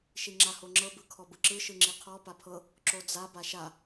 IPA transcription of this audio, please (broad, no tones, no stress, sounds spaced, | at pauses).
ʃ i ŋ͡ǁ a h o ŋ͡ǁ ɤ b ɯ kʰ ɔ b ɯ ǁ ɯ ʃ ɯ ŋ͡ǁ i qʰ ɔ p a pʰ ɤ | ǁ o d͡z a b a ʃ a